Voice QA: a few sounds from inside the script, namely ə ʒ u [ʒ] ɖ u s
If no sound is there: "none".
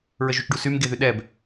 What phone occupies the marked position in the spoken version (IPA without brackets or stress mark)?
t͡ʃ